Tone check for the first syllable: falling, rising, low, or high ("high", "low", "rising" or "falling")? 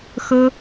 high